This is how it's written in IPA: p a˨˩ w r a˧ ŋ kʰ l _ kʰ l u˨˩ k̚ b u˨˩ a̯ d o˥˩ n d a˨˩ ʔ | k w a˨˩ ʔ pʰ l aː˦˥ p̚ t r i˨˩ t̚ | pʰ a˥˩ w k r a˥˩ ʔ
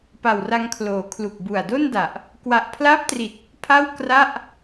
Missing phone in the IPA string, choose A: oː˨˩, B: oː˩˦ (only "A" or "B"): B